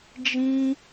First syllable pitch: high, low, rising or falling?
high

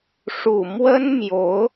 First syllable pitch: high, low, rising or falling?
low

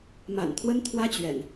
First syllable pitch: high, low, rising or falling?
low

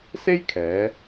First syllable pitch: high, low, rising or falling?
high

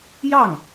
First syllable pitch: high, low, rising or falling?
falling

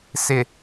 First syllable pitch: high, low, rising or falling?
low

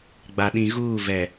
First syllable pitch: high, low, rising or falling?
low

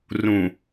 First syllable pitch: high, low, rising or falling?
low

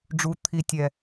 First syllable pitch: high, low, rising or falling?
low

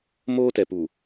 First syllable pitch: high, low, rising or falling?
high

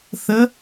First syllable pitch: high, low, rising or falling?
rising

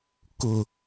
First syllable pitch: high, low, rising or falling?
low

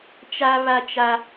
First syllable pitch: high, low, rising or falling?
high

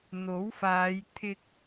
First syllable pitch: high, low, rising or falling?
rising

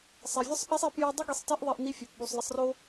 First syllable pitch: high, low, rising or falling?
low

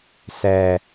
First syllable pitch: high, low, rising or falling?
low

